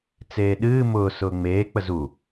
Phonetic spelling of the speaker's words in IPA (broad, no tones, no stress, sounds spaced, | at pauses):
t͡s eː ɗ ɨː m ʊː s ʊː ŋ͡m eː k͡p ə z u